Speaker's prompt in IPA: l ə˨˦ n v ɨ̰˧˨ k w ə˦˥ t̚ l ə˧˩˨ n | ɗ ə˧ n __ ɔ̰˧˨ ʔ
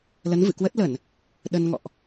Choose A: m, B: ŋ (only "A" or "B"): B